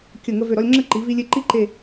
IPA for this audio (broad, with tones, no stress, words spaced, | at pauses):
kʲə˧˩ ŋə˧vø˧˩ɾɔ˧lʲŋ͡ǁə˥˧ ǃi˩˧vi˧lʲe˧ ǃi˥ǃe˧˩